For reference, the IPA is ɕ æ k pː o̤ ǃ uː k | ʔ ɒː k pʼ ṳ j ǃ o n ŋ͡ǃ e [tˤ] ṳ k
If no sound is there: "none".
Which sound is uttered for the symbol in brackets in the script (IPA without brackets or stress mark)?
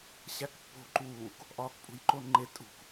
tʼ